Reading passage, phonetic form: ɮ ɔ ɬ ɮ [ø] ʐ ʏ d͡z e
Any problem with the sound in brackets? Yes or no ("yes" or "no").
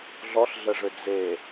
yes